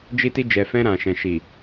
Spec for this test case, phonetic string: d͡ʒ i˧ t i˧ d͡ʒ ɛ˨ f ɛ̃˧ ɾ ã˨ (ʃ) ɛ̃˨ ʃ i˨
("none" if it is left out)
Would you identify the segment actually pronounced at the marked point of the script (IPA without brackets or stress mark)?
ʃ